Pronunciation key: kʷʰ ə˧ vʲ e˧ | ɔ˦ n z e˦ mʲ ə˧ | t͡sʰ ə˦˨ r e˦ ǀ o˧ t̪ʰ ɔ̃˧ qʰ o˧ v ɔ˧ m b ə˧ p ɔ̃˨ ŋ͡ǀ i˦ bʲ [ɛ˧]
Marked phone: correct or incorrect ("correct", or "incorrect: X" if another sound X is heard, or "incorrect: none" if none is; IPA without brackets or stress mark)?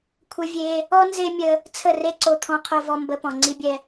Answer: incorrect: ɛ˦